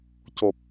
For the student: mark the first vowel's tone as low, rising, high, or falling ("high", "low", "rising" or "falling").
low